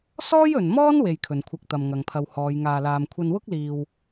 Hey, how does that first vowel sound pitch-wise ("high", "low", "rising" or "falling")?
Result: high